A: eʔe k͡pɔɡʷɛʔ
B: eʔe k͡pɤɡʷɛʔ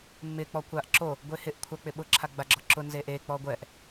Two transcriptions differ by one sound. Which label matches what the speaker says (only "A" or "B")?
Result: A